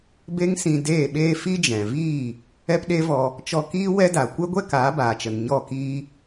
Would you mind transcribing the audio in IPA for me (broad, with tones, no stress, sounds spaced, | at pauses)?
b e˦ ŋ s ĩ˧ d eː˦˨ ɓ eː˦ f i˦ d͡ʒ ɛ̃˨ v iː˦˨ | ɛ˦ p ɗ e˦ v ɔ˧ | t͡ʃ ɔ˧ k iː˦ w ɛ˦ d a˨ kʷ ɛ˦ ɡʷ ɛ˦ k aː˨˦ b aː˨ t͡ʃ ə˨ n ɲ ɔ˦˨ k iː˦